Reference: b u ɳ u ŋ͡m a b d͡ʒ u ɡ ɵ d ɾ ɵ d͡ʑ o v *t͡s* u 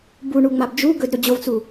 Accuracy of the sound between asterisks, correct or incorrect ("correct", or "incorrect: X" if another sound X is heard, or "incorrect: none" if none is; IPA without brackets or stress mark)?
correct